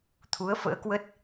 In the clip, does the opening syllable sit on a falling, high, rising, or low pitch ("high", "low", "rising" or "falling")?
rising